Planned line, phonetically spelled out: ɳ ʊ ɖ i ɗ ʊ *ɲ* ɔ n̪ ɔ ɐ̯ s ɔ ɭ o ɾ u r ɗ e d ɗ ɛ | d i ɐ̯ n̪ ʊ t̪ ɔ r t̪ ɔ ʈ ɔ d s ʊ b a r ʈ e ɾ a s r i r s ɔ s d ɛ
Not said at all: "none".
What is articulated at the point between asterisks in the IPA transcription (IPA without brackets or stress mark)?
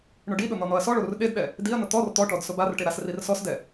n̪